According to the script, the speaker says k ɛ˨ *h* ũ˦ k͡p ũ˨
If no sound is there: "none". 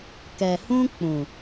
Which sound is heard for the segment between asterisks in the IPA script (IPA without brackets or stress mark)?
h